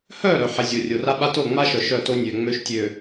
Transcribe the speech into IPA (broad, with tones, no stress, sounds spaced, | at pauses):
h œ˦˨ ɾ œ˨ ħ ɛ˨ zʲ o˨ rʲ o˨ r a˦ ɓ a˦ t o˦˨ ŋ͡m a˦ ʃ œ˨ ʃ œ˦˨ t o˦ nʲ ø˨ ŋ͡m ø˦ ʃ tʲ ø˨